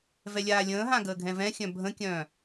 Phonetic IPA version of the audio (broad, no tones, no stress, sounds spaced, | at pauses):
v ɛ lʲ aː lʲ ə̃ː ɦ ã ɡ əː ɡʱ ɛ̃ v ɛ̃ xʲ œ̃ bʱ ə̃ kʲ œ̃ː